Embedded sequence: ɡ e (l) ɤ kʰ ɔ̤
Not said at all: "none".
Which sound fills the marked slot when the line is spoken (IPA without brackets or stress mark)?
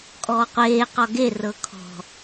r